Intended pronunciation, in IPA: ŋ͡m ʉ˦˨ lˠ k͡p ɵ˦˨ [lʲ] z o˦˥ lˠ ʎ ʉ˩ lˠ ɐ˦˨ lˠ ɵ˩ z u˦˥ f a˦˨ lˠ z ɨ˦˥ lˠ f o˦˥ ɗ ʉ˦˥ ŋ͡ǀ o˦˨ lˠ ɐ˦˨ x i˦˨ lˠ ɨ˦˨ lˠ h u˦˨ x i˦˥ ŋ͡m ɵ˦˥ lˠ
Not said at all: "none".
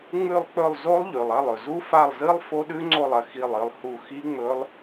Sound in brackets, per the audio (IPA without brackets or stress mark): lˠ